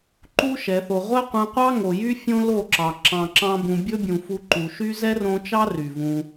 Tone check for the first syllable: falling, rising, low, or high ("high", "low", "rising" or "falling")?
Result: high